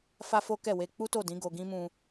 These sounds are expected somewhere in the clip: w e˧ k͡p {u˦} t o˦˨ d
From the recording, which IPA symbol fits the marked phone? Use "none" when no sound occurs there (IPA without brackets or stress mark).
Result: u˦